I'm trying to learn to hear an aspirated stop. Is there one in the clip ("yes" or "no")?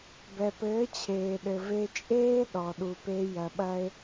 yes